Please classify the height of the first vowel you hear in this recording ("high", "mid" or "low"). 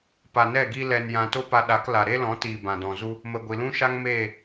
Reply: low